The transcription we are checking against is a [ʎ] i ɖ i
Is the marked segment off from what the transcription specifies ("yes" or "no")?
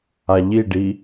no